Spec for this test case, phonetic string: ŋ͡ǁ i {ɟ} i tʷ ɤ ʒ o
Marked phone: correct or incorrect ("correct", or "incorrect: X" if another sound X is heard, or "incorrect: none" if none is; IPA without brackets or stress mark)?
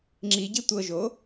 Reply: correct